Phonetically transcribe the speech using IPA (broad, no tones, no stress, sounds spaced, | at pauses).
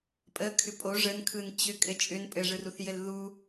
pʼ ə kʰ ʏ pʼ o ʐ ə n kʰ ɯ n t͡ɕ ʏ kʼ ɘ t͡ʃʼ ʏ n pʼ ɘ ʐ ɯ r u θ j ɘ l ð u